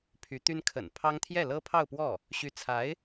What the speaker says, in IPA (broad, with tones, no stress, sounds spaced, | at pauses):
pʰ y˧˥ t̪ y˥ n kʰ ə̰˨˩ n pʰ ɑ˥ ŋ t̪ʰ j ɛ˥˩ l ɤ˥ pʰ ɑ˥˧ ʊ̯ p w ɔ˥˩ | ɕ y˧˥ t͡sʰ a˧˥ ɪ̯